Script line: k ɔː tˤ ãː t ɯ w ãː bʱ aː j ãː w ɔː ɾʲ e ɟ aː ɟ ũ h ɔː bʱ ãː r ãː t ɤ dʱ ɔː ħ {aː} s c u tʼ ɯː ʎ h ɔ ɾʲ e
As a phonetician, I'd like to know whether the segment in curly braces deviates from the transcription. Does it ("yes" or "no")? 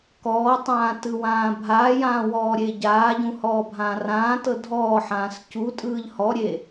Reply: yes